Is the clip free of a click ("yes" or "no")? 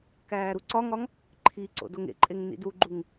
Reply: no